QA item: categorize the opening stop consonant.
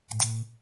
plain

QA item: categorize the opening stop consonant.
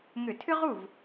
aspirated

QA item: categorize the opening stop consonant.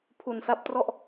aspirated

